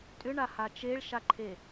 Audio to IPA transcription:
tʼ ʏ ɳ a h a t͡ʃ e ɭ ʃ a ǃʰ e

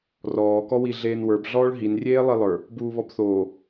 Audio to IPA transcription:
r ɔː k ɔ w i ɮ eː n w ə˞ b ɮ ɔː ɭ ɦ i n rʲ eː lˠ i lˠ ə˞ | b uː β ɔ b θ oː

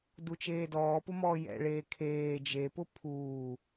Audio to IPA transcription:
d u t͡ʃ eː d ɔː p ʊ m ɔː j ɛ̰ ɭ eː kʰ eː d͡ʒ e p ʊ pʰ uː

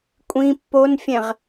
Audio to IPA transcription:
kʷʼ ĩ pː o n fʲ ɛ̃ ʁ

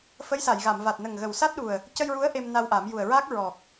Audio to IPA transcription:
f ə˧˥ j s a˨˩˨ j ɣ a˨˩˨ m v a˨˩ t̚ n ə˨˩ ŋ ɣ ə˨˩ w s a˦˥ t̚ ɗ u˨˩ ə̯ | c ə˧ j ɹ u˧˥ ə̯ ʔ e˧ m n a˧ w ʔ a˨˩˦ m j u˨˩ ə̯ ɹ aː˦˥ k̚ ɹ ɔ˨˩ k̚

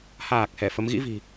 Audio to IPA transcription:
h aː˨˩ k̚ h ɛ˧˩ f ə˨˦ m ɣ ḭ˧˥ v i̤˨˩

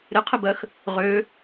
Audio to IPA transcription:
ɾ ɪ qʰ ɪ b ɜ x | ʁ ø

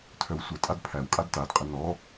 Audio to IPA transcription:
tʰ œ w sʷ ə tʼ a d pʰ æ w kʼ a d t a d qʼ ə n ɔ

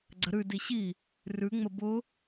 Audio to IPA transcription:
ɡ͡ǀ ə ɾ ʉ d i ɕ i | r ʉ ŋ͡m ə b ʊ

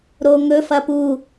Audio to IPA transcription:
ɾ o ŋ ɵ f ɐ p u

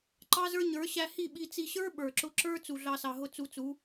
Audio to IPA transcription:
ǃ ɑ˦ z ə˞˦ ɲ ə˞˨˦ ɕ æ˧ h i˦˨ ɓ i˧ t͡s i˧ ɕ ə˞˦ ɓ ə˞˨ ǁ ʊ˦ ǁ ə˞˧ t͡s u˨ ɮ ɑ˧ s ɑ˨ ɦ ʊ˦ t͡s u˧ t͡s u˨˦

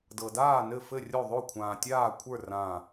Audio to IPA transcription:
d ɤ˨ d aː˥˩ n ɘ˥˩ f ɘ˥˩ rʲ o˥˩ ðˤ o˥˩ kʷʰ ãː˨ tʲ aː˥˩ kʷʰ ə˞˥˩ r ã˥˩

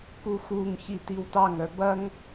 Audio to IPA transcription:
k u x u ŋ ç i t i w t ɑ ŋ œ b ɐ ŋ

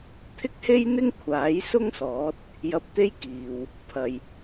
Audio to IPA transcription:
t̪ʰ ɪ˥ k̚ h e˥ j n̪ ɪ˥ ŋ kʷʰ aː˨˥ j s ʊ˥ ŋ s ɔː˨˥ t̚ | j ɐ˧ p̚ t̪ e˥ j k iː˨ w | pʰ ɐ˨ j

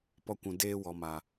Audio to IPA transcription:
p ɔ˧ kʷ ũ˨ d eː˧ w ɔ˨ m a˨

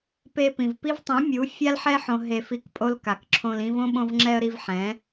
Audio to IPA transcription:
p e˦ p ĩ˨ v p i˦ v tˤ ĩ˨˦ mʲ u˨˦ fʲ a˦ l ħ ɛ˦ ħ õ˨ ɦ e˧ f i˧ k pʼ o˦ l k a˨ k ǁʰ õ˧ l ĩ˦ v õ˦ ɓ õ˧ v ŋ͡ǁ ɛ˧ ə̯ ɾ i˧ v ħ ɛ̃˨˦

